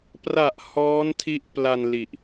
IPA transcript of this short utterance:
p r a˨˩ ʔ h ɔː˦˥ n tʰ i˦˥ ʔ p l a˧ n l i˨˩ ʔ

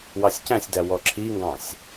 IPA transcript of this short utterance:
w ɑ sʲ c æ̃ sʲ d æ w ɔ ǁʰ i ŋ ɡ ɑ̃ sʲ

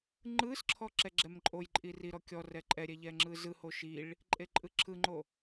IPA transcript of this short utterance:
ŋ͡ǃ ɯ s ǁʰ ɔ ǁ ɛ ɡ͡ǁ ɛ m ǃʼ o j ǃʼ i r i ɾ ɔ kʲ ɔ r ɛ ǃʼ ɛ ɾʲ ɛ ʎ ɛ ŋ͡ǁ ɯ z ɯ h o ʃ i ɭ | ǃʼ e ǃʼ ɯ ǁʰ ɯ ŋ͡ǃ o

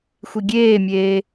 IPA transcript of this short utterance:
xʷ i ɡʲ eː mʲ eː

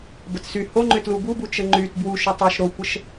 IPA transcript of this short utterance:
b ə t s y h o ŋ͡ǃ ʏ t l u b u b u t͡ʃ ə ŋ͡ǃ y t b w u ʃ o tˤ o ʃ ɾ o kʷ ə ʃ

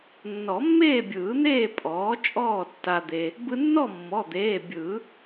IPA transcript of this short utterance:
nː ɔ˨˩˦ mː eː˥˨ bʲ ɯː˨˩˦ n̪ eː˥˨ pʼ ɔː˩˥ t͡ʃʼ ɔː˥˨ tː a˧ d̪ e˧ | b ɯ˧ nː ɔ˥˨ mː ɔ˩˧˩ d̪ eː˩˧˩ bʲ ɯ˨˩˦

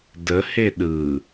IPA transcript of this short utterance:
d ə h e ɗ ɯ

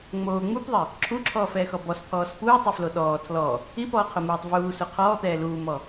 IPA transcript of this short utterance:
ŋ͡m oː ŋ͡m u p ðˤ ɪ | ǁʰ u ǁʰ ɔː f ɛː x ɔ b ɔ s pʰ ɔː s p uː tˤ ɪ f l o ɗ ɔː tʰ l ɔ | i p ɔː qʰ o m uː tˤ v uː s o qʰ ɔː t̪ ɛː l uː m ɔ

